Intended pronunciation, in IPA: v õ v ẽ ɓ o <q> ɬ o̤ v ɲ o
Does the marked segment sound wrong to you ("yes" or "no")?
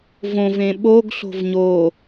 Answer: yes